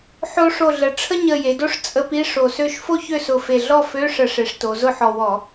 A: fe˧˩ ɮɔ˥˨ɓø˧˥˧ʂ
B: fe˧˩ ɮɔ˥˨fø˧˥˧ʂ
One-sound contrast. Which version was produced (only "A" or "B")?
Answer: B